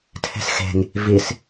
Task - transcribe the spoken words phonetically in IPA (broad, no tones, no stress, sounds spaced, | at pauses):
tʰ e̤ s x e̤ ŋ | v i s